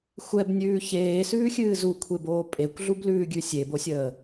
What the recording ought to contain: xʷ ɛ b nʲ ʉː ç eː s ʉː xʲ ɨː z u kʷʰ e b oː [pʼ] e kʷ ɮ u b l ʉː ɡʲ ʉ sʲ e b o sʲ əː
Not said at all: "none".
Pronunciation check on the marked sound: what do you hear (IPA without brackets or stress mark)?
pʼ